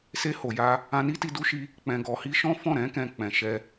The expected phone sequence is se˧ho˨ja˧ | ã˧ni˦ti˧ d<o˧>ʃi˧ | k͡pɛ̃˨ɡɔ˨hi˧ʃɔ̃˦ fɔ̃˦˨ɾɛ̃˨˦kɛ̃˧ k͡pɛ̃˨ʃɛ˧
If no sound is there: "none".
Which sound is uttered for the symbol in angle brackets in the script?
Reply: u˧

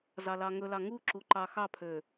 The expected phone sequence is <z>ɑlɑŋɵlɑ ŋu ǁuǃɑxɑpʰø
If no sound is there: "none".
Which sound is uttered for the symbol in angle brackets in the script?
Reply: z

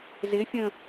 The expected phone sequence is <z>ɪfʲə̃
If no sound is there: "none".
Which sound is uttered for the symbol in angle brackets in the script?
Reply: z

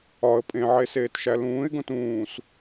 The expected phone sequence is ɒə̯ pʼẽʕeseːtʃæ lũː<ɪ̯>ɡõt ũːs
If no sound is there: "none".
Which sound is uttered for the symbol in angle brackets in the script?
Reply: ɪ̯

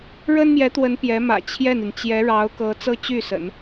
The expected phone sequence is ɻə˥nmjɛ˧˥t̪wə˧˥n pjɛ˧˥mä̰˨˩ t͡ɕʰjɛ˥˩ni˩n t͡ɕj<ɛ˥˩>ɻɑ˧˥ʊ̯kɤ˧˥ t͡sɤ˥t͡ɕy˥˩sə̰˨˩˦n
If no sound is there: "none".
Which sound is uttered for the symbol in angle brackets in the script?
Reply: ɛ˧˥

